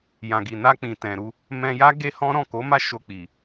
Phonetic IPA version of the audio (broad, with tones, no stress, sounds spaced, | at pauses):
j ã˨ ɡ i˨ n a˧ k͡p ĩ˨ t ɛ̃˨ ɾ u˧ | m ɛ̃˧ j a˦ ɡ e˦ h ɔ̃˦ ɾ ɔ̃˦˨ k o˨˦ m a˦˨ ʃ o˧ k͡p i˨